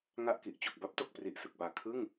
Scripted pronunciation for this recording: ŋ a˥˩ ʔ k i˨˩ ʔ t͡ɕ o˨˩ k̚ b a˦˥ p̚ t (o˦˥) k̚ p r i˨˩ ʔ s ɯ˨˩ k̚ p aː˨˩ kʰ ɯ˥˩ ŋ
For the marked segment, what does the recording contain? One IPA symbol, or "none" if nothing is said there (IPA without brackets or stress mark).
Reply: o˨˩